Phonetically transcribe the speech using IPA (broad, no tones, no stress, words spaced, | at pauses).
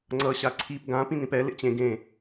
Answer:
ŋ͡ǀʌ ɕaǀʰip ɡã pĩnĩpɛ lḛt͡ɕẽ ɡẽ